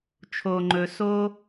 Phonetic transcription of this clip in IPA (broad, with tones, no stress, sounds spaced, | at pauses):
t͡ʃʰ o˨ ŋ͡ǃ ɵ˨ s o˦